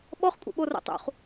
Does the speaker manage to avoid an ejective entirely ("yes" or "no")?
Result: no